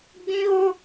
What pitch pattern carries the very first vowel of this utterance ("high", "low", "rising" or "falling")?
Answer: high